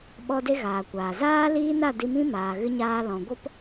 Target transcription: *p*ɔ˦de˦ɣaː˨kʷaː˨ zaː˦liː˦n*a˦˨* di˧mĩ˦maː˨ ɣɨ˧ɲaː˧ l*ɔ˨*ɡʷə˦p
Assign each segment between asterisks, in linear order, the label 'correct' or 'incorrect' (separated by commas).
incorrect, correct, incorrect